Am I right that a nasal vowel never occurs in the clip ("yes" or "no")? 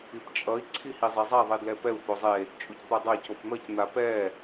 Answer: yes